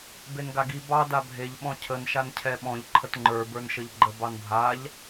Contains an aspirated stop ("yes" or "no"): yes